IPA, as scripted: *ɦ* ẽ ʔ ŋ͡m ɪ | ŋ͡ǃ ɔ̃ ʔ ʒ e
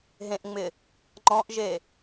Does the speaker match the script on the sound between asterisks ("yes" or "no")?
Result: yes